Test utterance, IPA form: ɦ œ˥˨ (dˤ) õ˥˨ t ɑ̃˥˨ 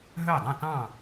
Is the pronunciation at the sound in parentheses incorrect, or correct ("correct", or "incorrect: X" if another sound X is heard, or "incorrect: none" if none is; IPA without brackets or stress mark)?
correct